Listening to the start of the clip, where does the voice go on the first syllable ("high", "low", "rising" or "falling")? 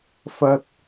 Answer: high